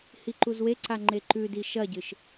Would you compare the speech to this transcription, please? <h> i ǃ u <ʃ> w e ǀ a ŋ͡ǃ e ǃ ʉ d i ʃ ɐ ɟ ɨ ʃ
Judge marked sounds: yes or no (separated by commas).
yes, no